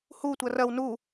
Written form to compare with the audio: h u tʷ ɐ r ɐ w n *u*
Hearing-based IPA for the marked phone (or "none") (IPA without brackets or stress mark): u